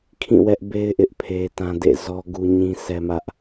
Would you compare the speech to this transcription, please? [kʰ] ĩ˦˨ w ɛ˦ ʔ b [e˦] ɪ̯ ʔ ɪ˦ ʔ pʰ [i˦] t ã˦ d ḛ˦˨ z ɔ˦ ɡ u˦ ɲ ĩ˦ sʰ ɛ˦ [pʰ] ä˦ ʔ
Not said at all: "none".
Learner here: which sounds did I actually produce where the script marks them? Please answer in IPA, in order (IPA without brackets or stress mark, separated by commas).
kʰ, e˦, e˦, m